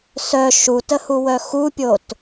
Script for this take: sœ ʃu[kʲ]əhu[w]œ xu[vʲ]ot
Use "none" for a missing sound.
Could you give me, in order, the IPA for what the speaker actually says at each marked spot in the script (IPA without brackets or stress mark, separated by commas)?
t, w, pʲ